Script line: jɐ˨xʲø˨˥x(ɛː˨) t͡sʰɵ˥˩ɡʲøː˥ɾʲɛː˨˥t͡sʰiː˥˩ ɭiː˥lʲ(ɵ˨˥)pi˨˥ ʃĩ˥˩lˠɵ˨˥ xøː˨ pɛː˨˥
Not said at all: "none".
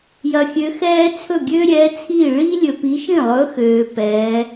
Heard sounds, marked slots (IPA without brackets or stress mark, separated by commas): ɛː˥, ɵ˨